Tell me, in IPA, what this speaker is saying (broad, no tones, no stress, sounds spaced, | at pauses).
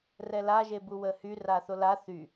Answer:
r ɛ l a ʒ e b u w ə h y r a θ o l a θ y